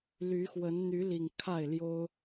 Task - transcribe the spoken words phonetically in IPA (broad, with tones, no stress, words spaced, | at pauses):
ly˨˦xwə˨˦n n̪y˨˦li˨˩ŋ kʰa˥˨ɪ̯ljo˦ʊ̯